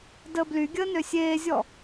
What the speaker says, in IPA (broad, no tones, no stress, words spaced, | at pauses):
dəːblyɡʲəː nøsʲeːzʲɔ